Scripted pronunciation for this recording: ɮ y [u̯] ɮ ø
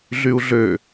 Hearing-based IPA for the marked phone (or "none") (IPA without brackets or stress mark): u̯